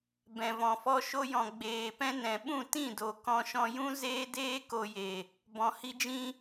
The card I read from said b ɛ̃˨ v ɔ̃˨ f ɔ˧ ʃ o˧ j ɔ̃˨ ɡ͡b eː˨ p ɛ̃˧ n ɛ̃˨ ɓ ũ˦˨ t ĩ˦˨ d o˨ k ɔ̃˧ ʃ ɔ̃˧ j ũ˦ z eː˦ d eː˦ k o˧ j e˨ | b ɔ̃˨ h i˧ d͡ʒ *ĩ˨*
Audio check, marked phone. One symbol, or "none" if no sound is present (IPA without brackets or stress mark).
ĩ˧